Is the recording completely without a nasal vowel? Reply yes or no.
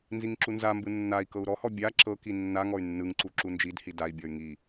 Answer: yes